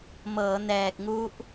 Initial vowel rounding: unrounded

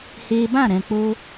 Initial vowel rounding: unrounded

